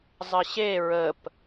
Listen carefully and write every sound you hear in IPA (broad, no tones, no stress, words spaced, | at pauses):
zˤəɕe ɹəp